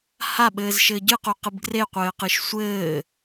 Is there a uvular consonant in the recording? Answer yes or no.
yes